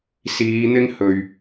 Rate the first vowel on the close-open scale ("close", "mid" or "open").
close